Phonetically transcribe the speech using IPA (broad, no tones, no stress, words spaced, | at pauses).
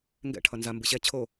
ŋɡɛ̰ ʈʰʌnza mbɯɕɛ t͡ɕʰo